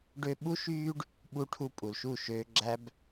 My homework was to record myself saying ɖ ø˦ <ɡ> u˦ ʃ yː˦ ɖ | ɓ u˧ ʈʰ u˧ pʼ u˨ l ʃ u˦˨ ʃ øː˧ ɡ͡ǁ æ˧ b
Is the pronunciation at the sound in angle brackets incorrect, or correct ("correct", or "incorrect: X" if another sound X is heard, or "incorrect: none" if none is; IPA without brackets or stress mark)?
incorrect: ɓ